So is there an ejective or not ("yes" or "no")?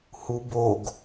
no